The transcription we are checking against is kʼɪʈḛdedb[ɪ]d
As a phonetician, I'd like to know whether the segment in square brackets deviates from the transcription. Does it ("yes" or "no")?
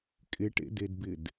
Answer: no